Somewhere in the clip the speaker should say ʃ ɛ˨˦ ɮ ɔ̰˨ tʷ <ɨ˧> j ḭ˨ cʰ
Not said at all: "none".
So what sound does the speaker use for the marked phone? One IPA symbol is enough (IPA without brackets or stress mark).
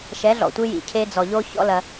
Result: ɨ˧